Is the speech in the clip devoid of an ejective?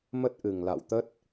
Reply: yes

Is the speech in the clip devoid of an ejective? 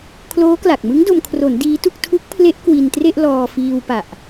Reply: yes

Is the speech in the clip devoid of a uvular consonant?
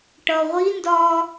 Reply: no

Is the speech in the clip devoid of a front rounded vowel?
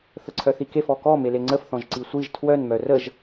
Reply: no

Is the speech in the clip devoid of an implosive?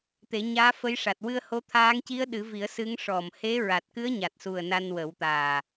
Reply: no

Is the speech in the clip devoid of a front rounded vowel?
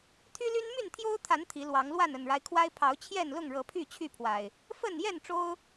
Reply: no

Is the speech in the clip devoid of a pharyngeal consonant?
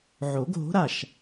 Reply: no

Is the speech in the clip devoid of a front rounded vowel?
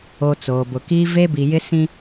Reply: yes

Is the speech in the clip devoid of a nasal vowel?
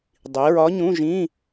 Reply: no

